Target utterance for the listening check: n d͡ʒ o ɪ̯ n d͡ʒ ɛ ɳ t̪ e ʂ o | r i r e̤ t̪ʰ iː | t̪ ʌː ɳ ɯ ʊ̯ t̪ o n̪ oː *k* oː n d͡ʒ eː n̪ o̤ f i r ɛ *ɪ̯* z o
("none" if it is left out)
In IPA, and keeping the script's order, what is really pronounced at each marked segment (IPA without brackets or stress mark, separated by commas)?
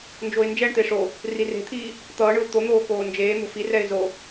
k, ɪ̯